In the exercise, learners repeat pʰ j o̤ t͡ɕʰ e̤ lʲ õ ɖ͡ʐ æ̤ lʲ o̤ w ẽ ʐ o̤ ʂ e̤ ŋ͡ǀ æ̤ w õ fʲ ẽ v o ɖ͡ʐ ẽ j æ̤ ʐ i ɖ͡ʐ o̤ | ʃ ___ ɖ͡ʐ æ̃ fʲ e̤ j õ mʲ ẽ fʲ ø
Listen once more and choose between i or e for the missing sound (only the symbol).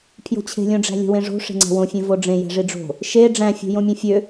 e